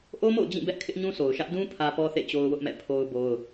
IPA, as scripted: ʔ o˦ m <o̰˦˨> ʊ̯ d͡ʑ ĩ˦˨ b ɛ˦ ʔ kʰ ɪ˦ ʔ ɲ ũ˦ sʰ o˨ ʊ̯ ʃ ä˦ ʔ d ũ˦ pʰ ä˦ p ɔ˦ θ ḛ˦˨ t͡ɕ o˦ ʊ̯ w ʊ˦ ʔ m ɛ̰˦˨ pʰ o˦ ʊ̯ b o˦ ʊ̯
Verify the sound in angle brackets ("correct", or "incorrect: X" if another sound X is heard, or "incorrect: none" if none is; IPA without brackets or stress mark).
correct